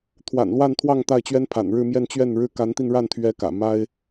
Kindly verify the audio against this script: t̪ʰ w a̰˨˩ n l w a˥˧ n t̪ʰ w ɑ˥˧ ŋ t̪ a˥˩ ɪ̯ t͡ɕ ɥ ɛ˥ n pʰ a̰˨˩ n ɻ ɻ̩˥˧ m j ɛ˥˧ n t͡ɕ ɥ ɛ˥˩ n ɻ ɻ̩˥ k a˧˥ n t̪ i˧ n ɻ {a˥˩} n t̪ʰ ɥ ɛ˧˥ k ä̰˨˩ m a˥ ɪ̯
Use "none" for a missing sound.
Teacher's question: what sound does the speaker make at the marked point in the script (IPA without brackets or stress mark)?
a˥˩